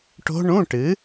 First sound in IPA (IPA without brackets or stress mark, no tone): ʈ